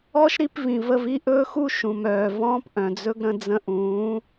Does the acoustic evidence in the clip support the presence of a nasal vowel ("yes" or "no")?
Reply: yes